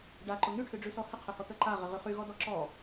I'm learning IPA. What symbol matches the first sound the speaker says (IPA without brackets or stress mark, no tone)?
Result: ɖ